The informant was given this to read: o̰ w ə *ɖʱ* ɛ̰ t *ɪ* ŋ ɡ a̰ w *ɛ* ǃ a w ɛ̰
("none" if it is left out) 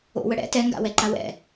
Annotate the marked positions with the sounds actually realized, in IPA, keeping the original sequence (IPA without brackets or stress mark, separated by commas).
ɽ, ɛ, ɛ